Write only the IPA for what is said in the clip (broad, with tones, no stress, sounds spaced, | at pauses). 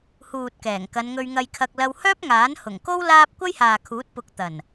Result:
h uː˨ t̚ k ɛː˨˩ ŋ k ɐ˨˧ n ŋ ɵ˧ ɥ ŋ ɐ˧ j kʰ ɐ˧ k̚ l ɐ˧ w h œː˥ p̚ ŋ aː˨˥ n h ʊ˨˩ ŋ k o˥ w l aː˥ p̚ kʷ ɐ˥ j h aː˨ kʰ uː˨˥ t̚ p ʊ˨˥ k̚ t̪ ɐ˨˩ n